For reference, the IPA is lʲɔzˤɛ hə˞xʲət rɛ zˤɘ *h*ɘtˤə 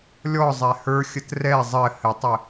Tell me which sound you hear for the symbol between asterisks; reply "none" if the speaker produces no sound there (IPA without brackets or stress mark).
h